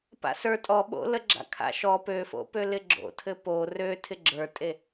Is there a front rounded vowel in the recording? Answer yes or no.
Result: yes